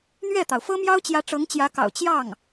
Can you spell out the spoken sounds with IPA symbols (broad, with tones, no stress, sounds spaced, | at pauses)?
n̪ ɥ ɛ˥˩ t̪ ɑ˩ ʊ̯ f ɤ˥ m j ɑ˥ ʊ̯ t͡ɕ j ä˧˥ ʈ͡ʂ ɤ˧˥ ŋ t͡ɕ j ä˧˥ k ɑ̰˨˩ ʊ̯ t͡ɕ j ɑ˥˩ ŋ